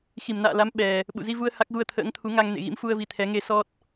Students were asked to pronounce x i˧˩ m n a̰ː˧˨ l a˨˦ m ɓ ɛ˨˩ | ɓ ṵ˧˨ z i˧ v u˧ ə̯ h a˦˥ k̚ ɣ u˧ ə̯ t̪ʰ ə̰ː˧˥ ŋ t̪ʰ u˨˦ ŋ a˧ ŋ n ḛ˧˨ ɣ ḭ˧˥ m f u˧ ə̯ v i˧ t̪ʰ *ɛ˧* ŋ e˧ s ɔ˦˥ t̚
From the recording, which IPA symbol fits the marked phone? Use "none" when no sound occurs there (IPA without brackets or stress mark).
ɛ˨˦